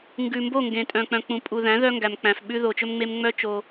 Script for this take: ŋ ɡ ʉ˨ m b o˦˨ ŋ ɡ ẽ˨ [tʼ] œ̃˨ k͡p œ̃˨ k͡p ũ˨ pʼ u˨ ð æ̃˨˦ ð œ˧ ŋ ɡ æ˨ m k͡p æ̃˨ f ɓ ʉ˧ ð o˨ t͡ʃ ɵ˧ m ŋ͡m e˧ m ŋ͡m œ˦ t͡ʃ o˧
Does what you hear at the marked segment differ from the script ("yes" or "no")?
no